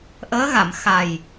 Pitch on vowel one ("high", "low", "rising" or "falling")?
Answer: rising